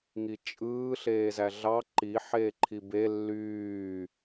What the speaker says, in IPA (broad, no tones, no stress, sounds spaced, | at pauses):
ŋ i t͡ʃʼ ɯː ɬ eː z æ ɮ ɑ ǃ i ħ eː ǃʰ i b e lː yː